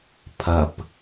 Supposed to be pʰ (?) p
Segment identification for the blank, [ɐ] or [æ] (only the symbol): ɐ